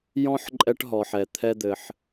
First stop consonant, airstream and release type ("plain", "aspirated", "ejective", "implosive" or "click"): click